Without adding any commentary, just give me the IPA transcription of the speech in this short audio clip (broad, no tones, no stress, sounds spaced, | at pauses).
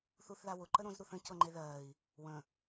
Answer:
θ u θ ð a w ʊ ǃ ə ɾ õ z ɾ u θ ə̃ c ɤ ŋ͡ǃ e ð ɜː i̯ | w ə̃